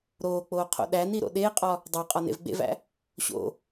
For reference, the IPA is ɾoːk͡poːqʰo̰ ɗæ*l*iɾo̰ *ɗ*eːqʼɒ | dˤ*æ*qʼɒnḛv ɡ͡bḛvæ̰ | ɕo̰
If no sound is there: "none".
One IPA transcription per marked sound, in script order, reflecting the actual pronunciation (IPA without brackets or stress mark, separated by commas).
n, ɗ, æ